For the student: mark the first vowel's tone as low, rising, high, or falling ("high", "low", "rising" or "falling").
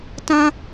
high